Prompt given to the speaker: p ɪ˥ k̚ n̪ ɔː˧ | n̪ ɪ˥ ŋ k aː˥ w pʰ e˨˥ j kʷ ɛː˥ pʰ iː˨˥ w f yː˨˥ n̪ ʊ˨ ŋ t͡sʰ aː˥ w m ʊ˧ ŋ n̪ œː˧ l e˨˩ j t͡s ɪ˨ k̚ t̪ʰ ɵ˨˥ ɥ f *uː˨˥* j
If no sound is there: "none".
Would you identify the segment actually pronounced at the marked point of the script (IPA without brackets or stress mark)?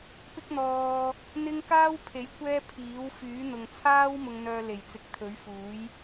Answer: uː˨˥